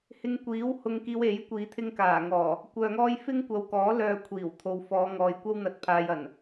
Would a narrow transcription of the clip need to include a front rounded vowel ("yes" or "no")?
yes